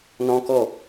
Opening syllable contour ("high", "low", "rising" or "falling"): high